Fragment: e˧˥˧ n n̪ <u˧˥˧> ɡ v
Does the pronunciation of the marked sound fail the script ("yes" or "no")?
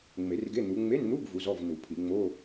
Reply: no